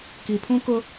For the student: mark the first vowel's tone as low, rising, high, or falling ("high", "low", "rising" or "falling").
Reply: low